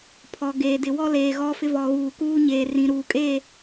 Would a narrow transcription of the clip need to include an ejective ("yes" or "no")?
yes